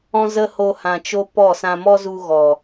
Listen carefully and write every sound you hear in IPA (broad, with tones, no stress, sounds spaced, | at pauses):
ɔ̃˦ z ə˦ h o˦ h ã˧ t͡ʃ o˦ p ɔ˦˨ s ã˧ m ɔ˦ z u˧ ɣ ɔ˨